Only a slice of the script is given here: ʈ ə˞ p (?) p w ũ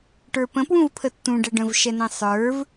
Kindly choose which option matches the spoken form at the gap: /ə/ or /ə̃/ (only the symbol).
ə̃